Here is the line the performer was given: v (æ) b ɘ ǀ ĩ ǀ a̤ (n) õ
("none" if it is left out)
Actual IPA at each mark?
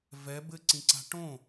ɛ, ʈ

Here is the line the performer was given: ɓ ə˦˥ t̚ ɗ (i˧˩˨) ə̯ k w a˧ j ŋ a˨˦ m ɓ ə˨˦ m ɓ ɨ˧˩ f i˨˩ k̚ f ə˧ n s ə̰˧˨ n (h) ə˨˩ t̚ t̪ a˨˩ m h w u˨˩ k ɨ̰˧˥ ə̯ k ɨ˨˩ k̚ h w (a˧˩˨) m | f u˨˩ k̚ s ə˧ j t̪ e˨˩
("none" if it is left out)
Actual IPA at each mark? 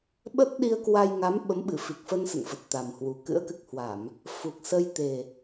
i˧, f, a˧˩˨

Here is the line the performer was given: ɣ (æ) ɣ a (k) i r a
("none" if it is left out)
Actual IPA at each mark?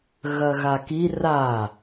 ɐ, k

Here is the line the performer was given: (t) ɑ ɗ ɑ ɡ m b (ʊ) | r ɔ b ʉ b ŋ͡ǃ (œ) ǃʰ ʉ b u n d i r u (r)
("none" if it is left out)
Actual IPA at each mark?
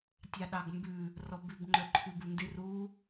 tʲ, ʉ, œ, none

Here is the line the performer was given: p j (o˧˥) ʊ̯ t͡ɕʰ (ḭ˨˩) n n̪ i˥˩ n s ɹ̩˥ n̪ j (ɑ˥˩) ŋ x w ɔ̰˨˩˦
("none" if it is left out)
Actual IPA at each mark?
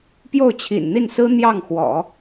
o˥˩, ḭ˨˩, ɑ˥˩

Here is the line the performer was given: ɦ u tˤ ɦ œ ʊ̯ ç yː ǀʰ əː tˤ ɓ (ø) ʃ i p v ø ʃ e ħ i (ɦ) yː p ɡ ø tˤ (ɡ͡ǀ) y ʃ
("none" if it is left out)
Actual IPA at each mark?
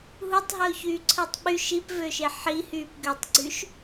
y, h, ɡ͡ǀ

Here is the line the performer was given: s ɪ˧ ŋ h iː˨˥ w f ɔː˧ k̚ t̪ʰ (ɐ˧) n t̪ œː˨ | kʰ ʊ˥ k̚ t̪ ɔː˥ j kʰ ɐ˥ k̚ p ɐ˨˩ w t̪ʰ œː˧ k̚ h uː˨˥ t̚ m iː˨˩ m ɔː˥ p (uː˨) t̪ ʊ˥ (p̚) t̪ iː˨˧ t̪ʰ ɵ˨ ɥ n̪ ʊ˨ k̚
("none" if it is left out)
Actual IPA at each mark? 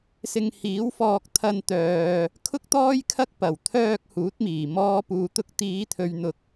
ɐ˧, uː˧, k̚

